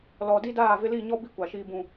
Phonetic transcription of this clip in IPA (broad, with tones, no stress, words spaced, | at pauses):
lɔ˨ di˦daː˦˨vɪ˦ li˦˨ɲɔ˦bi˦ kʷa˨ʃiː˦bũ˦